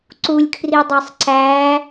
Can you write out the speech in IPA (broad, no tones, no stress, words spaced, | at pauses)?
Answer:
ǀulʲkʰridˤɛsˤ ǀæ